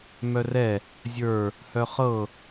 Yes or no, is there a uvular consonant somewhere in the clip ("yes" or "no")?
yes